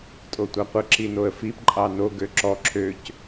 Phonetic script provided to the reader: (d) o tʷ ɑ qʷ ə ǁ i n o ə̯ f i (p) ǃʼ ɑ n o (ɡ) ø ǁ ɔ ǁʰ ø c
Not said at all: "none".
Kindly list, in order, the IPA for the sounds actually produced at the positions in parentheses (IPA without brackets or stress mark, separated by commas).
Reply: tʼ, p, ɡ